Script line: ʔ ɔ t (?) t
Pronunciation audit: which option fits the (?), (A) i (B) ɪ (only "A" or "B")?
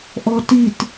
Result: A